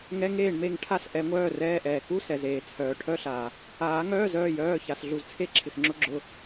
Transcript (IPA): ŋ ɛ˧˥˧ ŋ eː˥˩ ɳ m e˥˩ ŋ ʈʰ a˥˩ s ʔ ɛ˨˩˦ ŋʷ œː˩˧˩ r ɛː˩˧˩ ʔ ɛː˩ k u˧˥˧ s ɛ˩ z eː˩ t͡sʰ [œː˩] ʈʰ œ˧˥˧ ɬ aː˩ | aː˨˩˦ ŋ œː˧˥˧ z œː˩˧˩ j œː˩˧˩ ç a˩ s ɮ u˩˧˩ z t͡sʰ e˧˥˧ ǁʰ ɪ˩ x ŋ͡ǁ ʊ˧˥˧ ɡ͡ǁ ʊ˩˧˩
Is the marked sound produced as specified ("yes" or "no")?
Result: yes